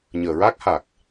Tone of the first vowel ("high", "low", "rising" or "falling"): low